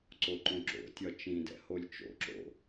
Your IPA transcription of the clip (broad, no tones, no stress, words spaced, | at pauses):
ǀoǃõǁo̰tʲɒ t͡ʃĩdɛ̰ holʲt͡ʃo̰ǁo̰